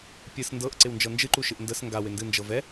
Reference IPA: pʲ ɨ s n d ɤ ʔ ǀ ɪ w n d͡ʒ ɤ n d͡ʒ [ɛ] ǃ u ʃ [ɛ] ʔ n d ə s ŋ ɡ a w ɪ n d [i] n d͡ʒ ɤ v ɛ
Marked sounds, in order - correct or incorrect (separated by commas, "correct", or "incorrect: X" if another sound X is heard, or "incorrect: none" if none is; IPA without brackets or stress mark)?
incorrect: ɨ, incorrect: ɨ, incorrect: ɨ